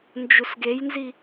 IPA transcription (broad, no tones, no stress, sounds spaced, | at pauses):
n d͡ʒ u s ɡ e j n z i